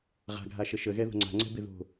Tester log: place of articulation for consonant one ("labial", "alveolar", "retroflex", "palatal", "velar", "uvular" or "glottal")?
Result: uvular